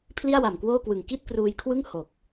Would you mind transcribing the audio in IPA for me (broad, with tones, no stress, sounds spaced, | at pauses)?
pʰ l i˥˩ a̯ w a˨˩ m k w oː˥˩ k w ɯ˨˩ ŋ k i˥˩ t̚ k r uː˧ j kʰ w ɯ˥˩ ŋ h o˨˩ k̚